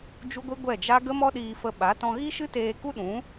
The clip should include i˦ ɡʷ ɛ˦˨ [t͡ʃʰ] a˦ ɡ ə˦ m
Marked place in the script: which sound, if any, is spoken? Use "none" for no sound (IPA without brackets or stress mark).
d͡ʒ